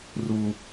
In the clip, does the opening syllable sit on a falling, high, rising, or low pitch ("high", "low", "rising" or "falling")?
high